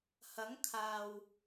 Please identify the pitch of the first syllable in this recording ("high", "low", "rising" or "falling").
rising